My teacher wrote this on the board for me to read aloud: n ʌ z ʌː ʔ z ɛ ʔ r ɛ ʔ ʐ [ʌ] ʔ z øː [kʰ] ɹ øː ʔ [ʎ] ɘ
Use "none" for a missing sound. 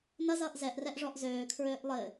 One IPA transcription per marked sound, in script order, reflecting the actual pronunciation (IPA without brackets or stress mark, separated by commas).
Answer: ɔ, kʰ, lˠ